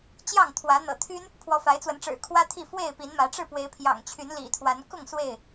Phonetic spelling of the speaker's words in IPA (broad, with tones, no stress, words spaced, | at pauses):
t͡ɕjɑ˥˨ŋt̪ʰwä˨˦ n̪ɤ̰˨˩t̪ʰy˦n | pʰwɔ˨˦fa˨˦ɪ̯t͡swə˨˦nʈ͡ʂɻ̩˨˩ kʰwä˦t̪ʰi˥˨ fwe˥˨ɪ̯ pi˨˦nmä˨˦ ʈ͡ʂɻ̩˥˨ pwe˨˦ɪ̯pʰjɑ̰˨˩ŋt͡ɕʰy˨˦n lḭ˨˩t̪ʰwa˨˦n kʊ˥˨ŋ swe˥˨ɪ̯